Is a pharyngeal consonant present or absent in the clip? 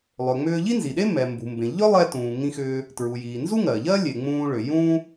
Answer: absent